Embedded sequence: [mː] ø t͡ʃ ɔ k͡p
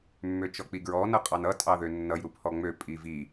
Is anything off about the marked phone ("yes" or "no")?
no